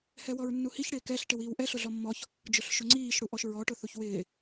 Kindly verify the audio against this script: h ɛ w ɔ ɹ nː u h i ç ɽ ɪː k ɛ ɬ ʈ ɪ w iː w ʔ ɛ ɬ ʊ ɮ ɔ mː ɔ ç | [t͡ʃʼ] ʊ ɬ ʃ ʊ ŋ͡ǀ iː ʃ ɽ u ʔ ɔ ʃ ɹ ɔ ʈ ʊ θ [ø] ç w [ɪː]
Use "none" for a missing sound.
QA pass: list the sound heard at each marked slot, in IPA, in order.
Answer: d͡ʒ, u, ɪː

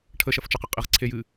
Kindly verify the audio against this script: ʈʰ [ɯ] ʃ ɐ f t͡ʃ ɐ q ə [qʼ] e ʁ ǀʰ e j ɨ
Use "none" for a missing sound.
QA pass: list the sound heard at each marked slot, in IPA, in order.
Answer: ə, qʼ

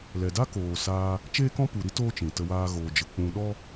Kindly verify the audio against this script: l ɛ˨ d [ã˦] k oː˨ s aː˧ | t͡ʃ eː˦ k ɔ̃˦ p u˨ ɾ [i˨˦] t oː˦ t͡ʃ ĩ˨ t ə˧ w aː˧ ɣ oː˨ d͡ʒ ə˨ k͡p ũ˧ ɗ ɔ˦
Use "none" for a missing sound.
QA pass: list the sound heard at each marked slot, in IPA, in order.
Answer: a˦, i˦

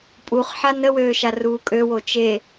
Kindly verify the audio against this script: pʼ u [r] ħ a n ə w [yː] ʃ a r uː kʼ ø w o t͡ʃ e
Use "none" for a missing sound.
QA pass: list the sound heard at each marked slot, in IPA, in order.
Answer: χ, øː

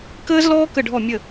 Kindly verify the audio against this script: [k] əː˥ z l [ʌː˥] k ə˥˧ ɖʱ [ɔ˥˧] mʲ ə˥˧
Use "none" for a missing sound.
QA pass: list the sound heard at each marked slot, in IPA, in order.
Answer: k, ɔː˥, ɔ˥˧

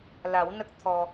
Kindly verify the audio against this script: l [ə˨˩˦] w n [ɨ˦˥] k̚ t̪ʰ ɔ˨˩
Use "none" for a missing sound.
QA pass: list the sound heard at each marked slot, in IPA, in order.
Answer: a˨˩˦, ə˦˥

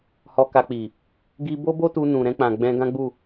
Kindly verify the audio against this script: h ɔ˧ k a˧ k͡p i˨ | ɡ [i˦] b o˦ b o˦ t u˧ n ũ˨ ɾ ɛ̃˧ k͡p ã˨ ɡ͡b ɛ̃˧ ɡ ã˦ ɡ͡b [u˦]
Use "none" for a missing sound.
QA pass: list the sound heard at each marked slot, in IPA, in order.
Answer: i˦, u˦˨

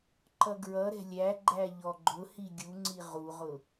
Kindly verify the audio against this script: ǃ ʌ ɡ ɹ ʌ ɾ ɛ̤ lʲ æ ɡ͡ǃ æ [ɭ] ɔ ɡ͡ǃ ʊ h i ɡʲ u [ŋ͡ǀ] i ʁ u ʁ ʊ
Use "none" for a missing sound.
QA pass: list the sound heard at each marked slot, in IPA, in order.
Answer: ʎ, ŋ͡ǀ

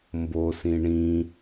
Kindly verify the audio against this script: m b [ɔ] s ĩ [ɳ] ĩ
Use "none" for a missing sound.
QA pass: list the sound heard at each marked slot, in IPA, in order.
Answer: o, ɳ

